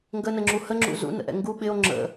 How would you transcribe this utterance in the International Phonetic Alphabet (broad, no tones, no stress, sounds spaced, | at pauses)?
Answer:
ŋ ɡ ə n ə ŋ͡ǁ u h ə ŋ͡ǁ ṵ z ṵ n ə̰ ʔ ɛ̰ ŋ ɡ u ɓ ɪ o̯ ŋ͡ǁ ə̰